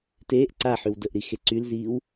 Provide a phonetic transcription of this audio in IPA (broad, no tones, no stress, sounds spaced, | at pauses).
t eː ʔ ǀ a ħ y w d ə ʔ ɾ i x e ǀ y l z iː w